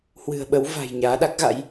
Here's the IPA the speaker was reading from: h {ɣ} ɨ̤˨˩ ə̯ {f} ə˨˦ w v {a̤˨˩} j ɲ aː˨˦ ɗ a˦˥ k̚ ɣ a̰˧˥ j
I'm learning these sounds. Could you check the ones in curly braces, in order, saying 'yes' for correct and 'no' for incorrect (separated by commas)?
no, no, yes